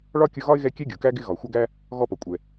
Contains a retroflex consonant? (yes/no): yes